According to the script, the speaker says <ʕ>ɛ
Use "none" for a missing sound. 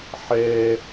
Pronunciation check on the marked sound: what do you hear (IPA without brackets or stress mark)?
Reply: ħ